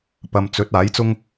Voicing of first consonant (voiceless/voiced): voiceless